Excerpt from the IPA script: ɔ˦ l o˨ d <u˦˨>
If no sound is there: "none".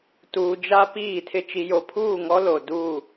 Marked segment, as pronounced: u˦˨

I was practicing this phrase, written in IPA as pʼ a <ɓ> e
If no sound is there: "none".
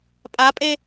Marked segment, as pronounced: pʼ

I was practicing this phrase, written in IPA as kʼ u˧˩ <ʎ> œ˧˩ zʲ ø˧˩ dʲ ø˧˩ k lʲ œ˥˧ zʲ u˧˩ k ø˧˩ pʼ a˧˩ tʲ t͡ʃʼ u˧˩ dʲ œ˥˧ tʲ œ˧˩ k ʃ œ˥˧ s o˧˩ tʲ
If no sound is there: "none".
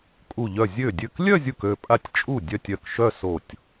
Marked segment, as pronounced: ʎ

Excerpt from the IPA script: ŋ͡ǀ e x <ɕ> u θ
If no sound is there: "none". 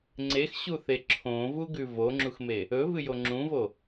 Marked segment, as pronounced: ɕ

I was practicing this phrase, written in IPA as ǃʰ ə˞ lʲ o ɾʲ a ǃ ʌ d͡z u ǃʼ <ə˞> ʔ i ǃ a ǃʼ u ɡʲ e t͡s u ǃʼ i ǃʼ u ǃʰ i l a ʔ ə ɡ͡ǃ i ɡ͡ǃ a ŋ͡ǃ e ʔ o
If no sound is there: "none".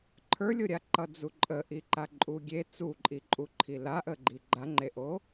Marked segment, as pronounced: ə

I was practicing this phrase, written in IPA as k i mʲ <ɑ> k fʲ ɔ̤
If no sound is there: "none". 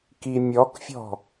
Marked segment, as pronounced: ɔ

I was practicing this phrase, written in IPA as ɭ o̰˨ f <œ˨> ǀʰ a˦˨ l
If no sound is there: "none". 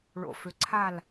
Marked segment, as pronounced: ø˨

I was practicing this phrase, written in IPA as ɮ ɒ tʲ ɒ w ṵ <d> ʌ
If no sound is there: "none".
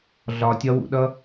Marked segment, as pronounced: ɗ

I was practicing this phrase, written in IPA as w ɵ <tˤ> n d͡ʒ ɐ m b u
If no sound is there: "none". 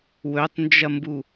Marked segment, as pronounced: tˤ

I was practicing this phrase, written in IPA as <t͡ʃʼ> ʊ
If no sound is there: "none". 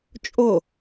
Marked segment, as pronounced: t͡ʃʼ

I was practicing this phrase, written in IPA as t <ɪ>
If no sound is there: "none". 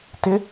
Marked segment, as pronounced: ɪ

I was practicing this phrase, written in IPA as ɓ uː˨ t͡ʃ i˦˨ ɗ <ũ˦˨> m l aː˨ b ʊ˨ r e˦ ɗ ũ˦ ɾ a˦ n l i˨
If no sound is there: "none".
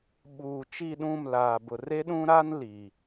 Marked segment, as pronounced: ũ˦˨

